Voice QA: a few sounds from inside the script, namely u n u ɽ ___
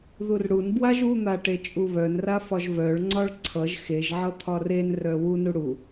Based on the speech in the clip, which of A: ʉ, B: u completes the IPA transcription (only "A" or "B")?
B